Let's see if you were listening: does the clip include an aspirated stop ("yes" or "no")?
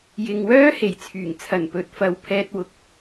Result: yes